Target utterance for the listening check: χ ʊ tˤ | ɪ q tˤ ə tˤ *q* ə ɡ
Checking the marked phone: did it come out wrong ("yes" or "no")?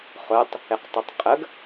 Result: yes